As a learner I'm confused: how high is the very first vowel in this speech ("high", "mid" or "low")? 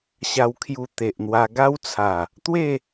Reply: low